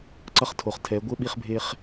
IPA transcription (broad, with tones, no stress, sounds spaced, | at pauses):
ǀ ʌ˦ χ tʰ o˨ χ tʰ ɛ˨˦ ɡʷ ɘ˦ ɓ i˦ χ bʱ e˦ χ